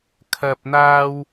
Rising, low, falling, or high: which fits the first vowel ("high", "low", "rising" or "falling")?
low